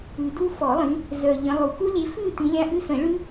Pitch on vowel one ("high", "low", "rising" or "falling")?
low